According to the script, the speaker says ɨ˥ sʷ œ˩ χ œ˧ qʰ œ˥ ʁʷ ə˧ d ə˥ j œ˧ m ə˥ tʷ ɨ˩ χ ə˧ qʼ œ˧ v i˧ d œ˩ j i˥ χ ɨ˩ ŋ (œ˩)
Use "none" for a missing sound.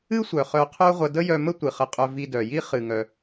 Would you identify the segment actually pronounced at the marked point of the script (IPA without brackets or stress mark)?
œ˩